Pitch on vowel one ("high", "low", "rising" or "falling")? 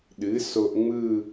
rising